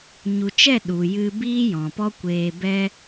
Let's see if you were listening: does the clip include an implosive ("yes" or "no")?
yes